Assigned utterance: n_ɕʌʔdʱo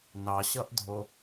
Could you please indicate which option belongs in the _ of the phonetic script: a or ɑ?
ɑ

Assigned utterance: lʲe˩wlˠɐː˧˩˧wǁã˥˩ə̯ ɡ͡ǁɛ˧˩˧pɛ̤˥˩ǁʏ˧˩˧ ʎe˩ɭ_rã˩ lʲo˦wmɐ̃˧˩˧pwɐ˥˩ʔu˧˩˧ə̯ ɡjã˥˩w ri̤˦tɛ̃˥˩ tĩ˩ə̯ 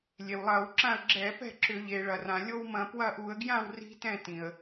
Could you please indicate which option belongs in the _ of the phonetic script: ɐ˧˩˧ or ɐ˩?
ɐ˩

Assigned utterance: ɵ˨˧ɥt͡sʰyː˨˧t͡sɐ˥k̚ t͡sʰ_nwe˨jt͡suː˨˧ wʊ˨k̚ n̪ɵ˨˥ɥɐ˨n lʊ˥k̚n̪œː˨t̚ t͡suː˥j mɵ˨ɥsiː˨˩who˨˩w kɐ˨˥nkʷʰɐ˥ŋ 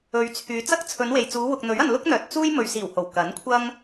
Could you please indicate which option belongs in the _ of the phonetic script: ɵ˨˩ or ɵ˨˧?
ɵ˨˧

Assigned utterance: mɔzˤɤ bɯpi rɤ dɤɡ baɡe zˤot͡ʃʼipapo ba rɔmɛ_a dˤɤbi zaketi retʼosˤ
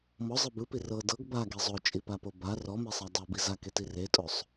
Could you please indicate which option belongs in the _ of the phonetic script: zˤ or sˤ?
sˤ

